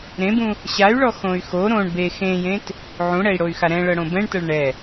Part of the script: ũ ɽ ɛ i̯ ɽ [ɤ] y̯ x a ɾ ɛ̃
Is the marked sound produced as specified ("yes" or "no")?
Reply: no